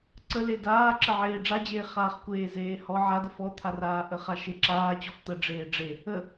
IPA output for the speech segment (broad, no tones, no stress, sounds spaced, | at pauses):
ǀ ə l e d aː ǁ ə ʕ eː ɖ͡ʐ a d͡ʑ eː χ aː χ kʷ eː z eː h ɔ ʕ a d ə f ɔ t̪ʰ a r aː ʔ ə χ a ʃ e ǁ aː t͡ɕ ɔ f t̪ ə ɖ͡ʐ eː ɖ͡ʐ e | ə